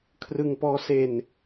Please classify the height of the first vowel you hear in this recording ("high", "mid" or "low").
high